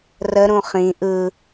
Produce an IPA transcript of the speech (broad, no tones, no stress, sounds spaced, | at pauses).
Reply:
r ə ɾ ũ χ ĩ ʔ ɯ